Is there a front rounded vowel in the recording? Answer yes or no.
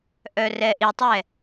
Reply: yes